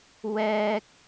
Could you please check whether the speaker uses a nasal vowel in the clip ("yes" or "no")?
no